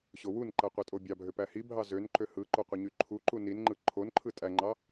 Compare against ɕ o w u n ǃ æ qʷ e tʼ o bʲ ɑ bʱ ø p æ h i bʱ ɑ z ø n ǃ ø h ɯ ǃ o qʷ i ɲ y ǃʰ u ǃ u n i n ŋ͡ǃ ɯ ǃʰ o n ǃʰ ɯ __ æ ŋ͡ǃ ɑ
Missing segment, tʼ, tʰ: tʼ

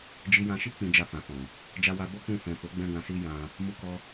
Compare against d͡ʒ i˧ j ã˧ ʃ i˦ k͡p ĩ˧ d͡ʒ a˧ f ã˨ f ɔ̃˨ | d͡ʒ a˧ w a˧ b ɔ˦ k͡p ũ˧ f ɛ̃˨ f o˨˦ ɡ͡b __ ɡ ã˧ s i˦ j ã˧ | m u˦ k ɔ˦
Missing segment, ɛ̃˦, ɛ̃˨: ɛ̃˦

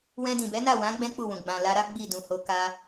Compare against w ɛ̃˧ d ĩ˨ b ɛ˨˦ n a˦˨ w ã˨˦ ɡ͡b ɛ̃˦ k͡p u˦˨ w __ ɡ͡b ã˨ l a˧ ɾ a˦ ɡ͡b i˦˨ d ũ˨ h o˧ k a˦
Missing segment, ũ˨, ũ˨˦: ũ˨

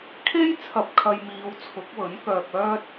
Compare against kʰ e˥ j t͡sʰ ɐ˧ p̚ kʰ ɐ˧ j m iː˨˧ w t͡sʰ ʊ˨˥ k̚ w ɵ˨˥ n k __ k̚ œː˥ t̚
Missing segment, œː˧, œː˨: œː˧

